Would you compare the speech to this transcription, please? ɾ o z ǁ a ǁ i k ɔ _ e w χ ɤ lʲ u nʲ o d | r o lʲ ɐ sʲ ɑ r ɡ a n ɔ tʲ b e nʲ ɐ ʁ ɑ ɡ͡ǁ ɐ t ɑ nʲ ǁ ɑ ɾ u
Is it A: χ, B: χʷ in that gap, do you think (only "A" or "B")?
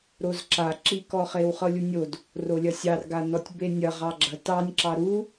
A